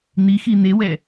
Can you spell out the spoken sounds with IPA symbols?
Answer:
n̪ixi n̪ewɛ

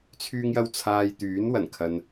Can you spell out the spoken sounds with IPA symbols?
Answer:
t͡sʰyː˧ŋjɐ˧wt͡sʰaː˨j t̪yː˨˥nwɐ˨˩nkʰɐ˨n

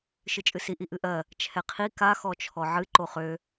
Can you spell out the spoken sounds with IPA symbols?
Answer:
ʃɨt͡ʃʼɨsi ʔiʔɨʔɜ | t͡ʃʰɛqʰi ka xɔt͡ʃʰɔʕɨ ǃoχø

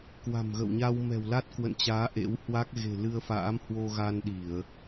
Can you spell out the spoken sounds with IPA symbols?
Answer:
kwa̤˨˩mɣə̰˧˨wɲa˧w mɛ̤˨˩wla˦˥t̚kwə̰˧˨nt͡ɕaː˨˦ ʔḛ˧˥whwa˦˥k̚ ɣe̤˨˩lɨ˧ə̯fa̰ː˧˥mhwo˧ ɣa˧nɗi˧˩˨ə̯

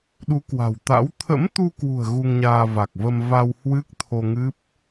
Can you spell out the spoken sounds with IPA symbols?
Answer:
ɗu˨˦kwa̤˨˩wt̪a̰˧˥w t̪ʰə̰˧˥mt̪u˧kwṳ˨˩ə̯ ɣu˧ŋɲaː˧va˨˩k̚və˧m va˧whwɨ˦˥k̚t̪ʰo˧ŋɨ˦˥p̚

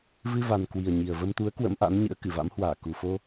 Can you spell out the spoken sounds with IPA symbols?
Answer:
vɨ˧va˨˩n kwi˨˩ə̯ɲi˨˩ə̯ və˧mt̪u˨˦ə̯ kwə̰˧˥mʔa̰˧˥nɲɨ̰˧˥ə̯ kɨ˧˩va̰˧˥mhwaː˧˩ ku˨˩fo˧

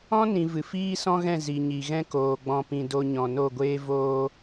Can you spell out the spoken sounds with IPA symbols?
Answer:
ɔ̃˦nĩ˨ vɨ˨fiː˦sɔ̃˦ɣɛ̃˦˨ zi˨ɲi˨ɣɛ̃˦koː˨ ɡ͡bɔ̃˧pĩ˧ do˦ɲɔ̃˧ no˦˨ɡʷeː˦voː˦

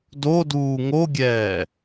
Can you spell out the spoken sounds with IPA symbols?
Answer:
doduː ŋoɡʲɛː

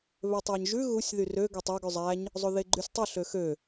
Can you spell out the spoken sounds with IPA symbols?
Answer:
βøtˤæɲʒʉ ɣusʲ ðyrø ɡøtˤæ ɡʉzˤæɲ | zˤoðeɡ͡ǃysʲtˤʉ ɬøxø

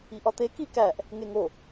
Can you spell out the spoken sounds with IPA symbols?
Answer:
iʔɒt̪e kikæʔ | ŋeŋo

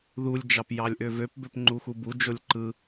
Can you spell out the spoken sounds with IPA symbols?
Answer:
ðulʲd͡ʒɑp jɑlʲʔøvøp bøpŋ͡ǃuxubu d͡ʒolʲǃɯ

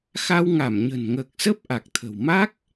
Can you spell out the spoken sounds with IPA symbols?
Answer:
xa˧w ŋa˧˩mɲə̤˨˩nŋəː˨˩k̚sə˦˥p̚ ʔa˨˩k̚t̪ʰə̤˨˩w ma˦˥k̚

